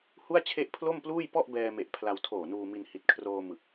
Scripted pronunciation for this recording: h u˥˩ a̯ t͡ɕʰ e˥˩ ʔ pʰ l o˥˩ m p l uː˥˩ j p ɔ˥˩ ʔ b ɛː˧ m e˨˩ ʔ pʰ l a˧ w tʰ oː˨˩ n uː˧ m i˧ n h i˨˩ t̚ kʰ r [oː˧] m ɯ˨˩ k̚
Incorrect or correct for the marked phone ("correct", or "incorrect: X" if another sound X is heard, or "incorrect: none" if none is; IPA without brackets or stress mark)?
correct